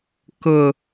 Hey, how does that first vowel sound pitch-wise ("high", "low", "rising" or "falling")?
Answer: low